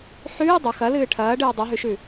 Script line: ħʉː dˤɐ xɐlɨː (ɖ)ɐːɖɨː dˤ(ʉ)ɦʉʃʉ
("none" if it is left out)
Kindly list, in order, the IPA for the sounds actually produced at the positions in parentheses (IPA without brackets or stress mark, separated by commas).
ʈʰ, ʉ